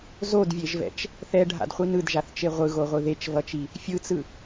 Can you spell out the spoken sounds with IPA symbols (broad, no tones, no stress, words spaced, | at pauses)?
zodvʲeʒvɛ̰t͡ʃ | θɛɖʱa̰dχʷi nɯdʒaθt͡ʃe ʁʷɯɣoʁʷɯ ðet͡ʃvʌt͡ʃi | fʲɯt͡sɯ